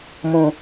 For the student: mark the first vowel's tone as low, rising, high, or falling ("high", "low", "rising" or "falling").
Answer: low